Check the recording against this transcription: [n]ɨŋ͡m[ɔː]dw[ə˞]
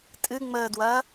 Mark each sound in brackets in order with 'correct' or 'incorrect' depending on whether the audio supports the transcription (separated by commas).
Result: incorrect, incorrect, incorrect